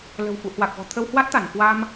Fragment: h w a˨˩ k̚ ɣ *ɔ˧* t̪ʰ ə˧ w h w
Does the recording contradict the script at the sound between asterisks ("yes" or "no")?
yes